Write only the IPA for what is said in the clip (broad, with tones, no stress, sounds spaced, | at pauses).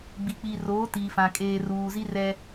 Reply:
ɡ͡b iː˨ k͡p iː˨ r oː˨˦ t iː˨ f ã˨ kʼ eː˨ r uː˨ z i˦ r ɛ˦